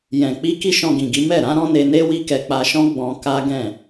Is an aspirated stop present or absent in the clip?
absent